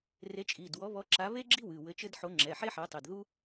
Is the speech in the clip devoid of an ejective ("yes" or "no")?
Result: no